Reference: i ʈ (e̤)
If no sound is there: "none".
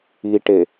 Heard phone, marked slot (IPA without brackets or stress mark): e